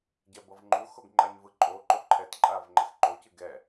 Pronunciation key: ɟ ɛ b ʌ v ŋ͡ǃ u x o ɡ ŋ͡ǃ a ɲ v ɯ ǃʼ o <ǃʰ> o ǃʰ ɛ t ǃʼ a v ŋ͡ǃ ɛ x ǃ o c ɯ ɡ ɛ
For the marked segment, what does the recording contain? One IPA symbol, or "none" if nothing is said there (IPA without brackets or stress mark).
ǃ